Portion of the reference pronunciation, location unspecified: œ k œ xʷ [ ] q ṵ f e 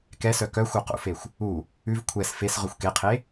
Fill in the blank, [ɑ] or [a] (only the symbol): ɑ